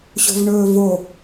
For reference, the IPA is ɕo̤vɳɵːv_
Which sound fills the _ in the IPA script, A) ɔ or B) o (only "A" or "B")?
B